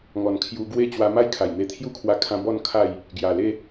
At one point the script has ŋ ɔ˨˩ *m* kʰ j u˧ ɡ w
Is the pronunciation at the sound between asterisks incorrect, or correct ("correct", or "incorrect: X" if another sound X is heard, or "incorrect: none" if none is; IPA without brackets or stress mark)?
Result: incorrect: n